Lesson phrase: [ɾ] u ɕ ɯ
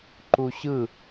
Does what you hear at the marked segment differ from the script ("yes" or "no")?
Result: yes